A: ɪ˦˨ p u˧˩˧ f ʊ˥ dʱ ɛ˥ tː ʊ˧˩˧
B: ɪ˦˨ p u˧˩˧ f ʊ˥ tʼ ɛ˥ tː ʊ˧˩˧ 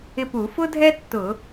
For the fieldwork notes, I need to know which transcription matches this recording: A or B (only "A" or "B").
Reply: A